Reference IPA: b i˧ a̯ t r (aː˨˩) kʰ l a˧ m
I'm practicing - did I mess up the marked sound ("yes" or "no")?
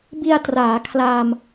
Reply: yes